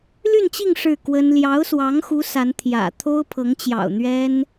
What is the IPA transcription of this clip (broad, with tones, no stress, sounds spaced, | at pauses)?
l y˥˧ n t͡ɕ i˥˧ ŋ ʂ ɻ̩˥˩ k w ə˥ n l j ɑ˧˥ ʊ̯ s w ɑ˧˥ ŋ x u˧˥ s a˧˥ n t̪ʰ j ä̰˨˩ t̪ʰ o˥ ʊ̯ pʰ ɤ˧˥ ŋ t͡ɕ j ɑ̰˨˩ ʊ̯ n̪ ɥ ɛ˥ n